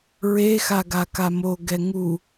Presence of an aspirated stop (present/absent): absent